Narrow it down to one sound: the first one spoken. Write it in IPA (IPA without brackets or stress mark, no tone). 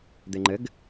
d̪